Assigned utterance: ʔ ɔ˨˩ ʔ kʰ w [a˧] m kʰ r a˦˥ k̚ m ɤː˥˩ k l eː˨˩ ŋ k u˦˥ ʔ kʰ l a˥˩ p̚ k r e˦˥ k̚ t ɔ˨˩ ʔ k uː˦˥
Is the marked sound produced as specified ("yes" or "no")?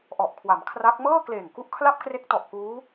no